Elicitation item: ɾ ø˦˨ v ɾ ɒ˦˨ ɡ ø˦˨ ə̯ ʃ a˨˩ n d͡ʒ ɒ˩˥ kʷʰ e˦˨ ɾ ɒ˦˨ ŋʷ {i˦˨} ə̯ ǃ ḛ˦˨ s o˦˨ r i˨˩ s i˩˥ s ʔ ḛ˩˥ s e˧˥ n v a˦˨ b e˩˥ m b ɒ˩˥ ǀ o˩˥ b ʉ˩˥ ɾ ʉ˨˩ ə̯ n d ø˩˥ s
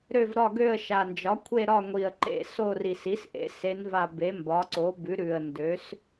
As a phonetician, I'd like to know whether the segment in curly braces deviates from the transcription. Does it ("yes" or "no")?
yes